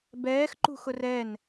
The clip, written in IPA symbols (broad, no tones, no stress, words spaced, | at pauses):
bɛːxǃṳxʊr ɛn